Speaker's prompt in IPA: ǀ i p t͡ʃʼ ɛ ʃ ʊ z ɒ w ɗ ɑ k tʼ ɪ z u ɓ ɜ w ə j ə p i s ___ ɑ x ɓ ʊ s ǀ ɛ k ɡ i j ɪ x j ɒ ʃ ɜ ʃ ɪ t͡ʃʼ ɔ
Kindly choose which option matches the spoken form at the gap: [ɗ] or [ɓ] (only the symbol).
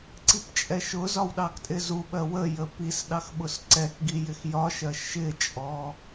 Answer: ɗ